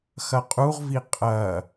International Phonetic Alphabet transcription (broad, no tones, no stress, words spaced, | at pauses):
xɐqʼuʁvi qʼɐ